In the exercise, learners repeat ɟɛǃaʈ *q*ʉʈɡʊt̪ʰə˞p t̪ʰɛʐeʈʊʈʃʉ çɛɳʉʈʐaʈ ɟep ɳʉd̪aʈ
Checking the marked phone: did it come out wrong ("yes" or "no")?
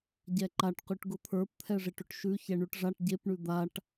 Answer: no